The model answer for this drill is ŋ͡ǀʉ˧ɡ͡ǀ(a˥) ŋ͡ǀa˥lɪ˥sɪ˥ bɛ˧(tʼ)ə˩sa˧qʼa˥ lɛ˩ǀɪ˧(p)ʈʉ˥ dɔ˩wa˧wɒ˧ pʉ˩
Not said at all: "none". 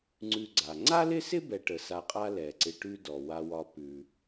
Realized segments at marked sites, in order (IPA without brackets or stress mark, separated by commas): a˩, ʈ, none